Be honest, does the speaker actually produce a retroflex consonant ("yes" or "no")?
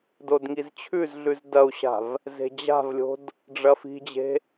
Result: yes